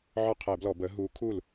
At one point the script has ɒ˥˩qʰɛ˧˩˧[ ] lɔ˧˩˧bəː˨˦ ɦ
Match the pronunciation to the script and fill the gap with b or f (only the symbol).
b